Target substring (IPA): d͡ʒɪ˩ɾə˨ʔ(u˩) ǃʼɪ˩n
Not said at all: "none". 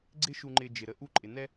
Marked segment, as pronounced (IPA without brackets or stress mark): u˦